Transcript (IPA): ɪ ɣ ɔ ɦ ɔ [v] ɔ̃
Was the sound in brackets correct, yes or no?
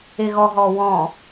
no